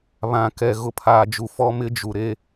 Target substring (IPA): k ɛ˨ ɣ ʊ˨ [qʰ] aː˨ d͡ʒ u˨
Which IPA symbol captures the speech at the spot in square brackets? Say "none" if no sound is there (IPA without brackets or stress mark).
pʰ